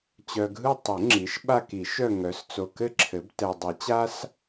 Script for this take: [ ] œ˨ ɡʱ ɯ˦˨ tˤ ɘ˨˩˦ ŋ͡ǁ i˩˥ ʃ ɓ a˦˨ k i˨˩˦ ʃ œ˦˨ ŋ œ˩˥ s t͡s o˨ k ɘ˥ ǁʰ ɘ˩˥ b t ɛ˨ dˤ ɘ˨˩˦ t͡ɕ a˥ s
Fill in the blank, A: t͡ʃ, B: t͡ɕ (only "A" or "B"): B